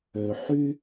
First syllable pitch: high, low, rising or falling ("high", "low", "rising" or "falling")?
low